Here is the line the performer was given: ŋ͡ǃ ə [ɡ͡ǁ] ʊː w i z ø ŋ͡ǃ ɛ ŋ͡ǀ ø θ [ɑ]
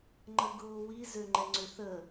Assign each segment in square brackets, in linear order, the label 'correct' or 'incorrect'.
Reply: incorrect, incorrect

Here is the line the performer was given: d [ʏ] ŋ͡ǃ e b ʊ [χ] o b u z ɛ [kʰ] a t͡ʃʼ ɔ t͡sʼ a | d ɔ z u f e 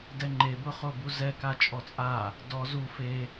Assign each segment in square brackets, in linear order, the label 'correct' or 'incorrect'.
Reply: incorrect, correct, incorrect

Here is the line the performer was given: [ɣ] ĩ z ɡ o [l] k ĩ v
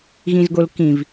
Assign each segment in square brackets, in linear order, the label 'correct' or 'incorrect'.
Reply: correct, correct

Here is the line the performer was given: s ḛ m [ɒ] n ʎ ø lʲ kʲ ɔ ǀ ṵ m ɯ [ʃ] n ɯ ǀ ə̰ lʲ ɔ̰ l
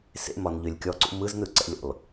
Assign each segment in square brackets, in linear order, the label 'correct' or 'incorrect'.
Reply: correct, incorrect

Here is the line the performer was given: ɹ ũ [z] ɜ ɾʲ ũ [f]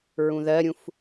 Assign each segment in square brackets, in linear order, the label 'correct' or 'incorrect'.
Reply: incorrect, correct

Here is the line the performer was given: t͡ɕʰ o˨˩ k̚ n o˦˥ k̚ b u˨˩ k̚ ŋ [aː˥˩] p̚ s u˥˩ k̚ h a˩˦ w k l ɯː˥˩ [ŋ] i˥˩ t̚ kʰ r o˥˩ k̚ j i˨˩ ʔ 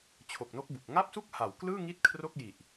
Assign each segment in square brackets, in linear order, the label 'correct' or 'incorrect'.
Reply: incorrect, correct

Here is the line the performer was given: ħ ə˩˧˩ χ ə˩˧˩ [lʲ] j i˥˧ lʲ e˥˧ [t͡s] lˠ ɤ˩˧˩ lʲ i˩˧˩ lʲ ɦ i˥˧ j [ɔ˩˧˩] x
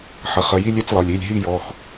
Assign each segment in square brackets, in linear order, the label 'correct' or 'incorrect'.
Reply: incorrect, correct, correct

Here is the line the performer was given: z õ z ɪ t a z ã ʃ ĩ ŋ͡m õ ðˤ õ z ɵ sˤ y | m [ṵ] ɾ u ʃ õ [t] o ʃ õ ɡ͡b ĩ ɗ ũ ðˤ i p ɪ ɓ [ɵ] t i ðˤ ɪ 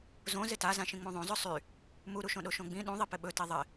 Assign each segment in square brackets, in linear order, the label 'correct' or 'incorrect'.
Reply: incorrect, incorrect, correct

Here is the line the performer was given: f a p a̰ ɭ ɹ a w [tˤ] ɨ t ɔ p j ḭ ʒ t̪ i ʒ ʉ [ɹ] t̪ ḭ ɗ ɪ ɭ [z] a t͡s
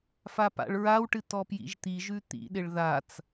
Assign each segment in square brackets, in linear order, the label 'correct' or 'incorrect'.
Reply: incorrect, incorrect, incorrect

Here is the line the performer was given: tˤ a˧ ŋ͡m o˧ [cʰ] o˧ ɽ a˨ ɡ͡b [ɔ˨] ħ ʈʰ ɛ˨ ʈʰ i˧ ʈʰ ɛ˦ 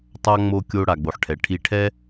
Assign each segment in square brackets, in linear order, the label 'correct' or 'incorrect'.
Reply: incorrect, incorrect

